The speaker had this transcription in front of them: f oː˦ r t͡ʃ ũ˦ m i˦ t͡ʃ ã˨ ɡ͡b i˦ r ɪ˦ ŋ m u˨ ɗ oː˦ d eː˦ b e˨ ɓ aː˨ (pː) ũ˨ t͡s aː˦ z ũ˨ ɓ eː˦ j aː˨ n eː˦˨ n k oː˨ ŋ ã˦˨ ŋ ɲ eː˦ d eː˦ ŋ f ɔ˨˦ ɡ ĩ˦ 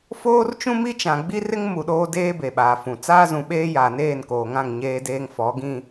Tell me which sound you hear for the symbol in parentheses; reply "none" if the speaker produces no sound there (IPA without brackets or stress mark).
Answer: f